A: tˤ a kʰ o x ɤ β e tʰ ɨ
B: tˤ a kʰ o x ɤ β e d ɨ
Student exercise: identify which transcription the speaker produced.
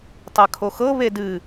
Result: B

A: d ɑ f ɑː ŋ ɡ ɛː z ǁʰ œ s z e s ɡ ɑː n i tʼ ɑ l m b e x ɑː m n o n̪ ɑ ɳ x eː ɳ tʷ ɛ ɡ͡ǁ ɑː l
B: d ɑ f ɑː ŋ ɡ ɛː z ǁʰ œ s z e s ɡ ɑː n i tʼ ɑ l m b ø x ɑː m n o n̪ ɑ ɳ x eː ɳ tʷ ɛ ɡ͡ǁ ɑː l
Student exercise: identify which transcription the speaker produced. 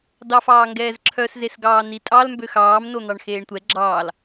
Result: B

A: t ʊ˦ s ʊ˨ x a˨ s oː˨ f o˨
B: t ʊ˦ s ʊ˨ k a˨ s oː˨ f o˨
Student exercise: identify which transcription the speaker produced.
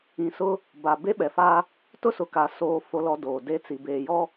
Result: B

